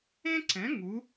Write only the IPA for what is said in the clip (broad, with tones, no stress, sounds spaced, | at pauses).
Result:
ẽ˥ ǀ ɛ̃˩˥ ŋ u˩˥